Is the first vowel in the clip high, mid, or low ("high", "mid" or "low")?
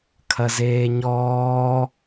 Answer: low